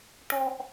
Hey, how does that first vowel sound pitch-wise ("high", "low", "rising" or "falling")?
high